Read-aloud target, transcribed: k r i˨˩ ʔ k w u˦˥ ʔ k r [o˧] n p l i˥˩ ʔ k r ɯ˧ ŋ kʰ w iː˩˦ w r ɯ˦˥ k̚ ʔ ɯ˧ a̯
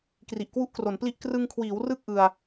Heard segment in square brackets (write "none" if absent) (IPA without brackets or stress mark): o˩˦